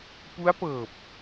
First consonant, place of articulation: labial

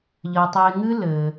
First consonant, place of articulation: palatal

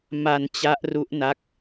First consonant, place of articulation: labial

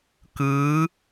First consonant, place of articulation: velar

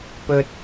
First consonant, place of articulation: labial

